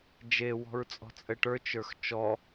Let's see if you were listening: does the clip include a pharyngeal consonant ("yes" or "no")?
no